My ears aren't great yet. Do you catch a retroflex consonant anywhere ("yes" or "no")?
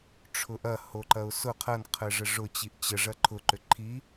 yes